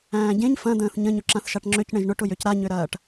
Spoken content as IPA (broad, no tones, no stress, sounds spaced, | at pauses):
æ̃ː ɟ ẽ ɲ f ɐ̃ d̪ ə̃ː θ ɲ ə̃ ɲ ʊ ǁ ã θ ʃ a ʈ ŋ͡ǁ ø c ɳ ẽ ʒ ɳ ʊ ʈ ʊ j ø c ɾ a ɲ ø ɾ ɐː ʈ